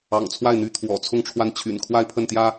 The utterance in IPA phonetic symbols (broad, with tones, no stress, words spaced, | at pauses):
ɑ̰˨˩ŋ t͡sʰwa˥˩ɪ̯n̪y˧˥ t̪ʰwɔ̰˨˩t͡sʰʊ˥˧ŋʈ͡ʂʰwa˥˩n t͡ɕʰy̰˨˩nkʰwa˥˧ɪ̯pʰə˥˩nt̪jä˥